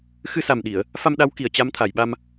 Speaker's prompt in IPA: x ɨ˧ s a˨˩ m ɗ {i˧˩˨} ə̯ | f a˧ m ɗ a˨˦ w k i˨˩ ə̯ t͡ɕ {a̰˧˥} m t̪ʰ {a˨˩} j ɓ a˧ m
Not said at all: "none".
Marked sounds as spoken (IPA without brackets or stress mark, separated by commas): i˧˩˨, a˧, a˨˩